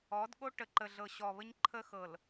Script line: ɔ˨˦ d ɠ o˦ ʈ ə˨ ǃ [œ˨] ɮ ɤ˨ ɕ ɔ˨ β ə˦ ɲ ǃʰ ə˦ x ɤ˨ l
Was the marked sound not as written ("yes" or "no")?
yes